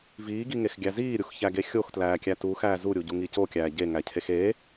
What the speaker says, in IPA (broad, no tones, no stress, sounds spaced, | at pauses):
v iː ɡ i ŋ e x ɡʲ æ z iː ɾʲ u x ç æ ɡ e xʲ o x t l æː kʲ æ t u x æː z u ɾʲ u ɟ u ŋ i c o kʲ æː ɟ e ŋ æ cʰ e x e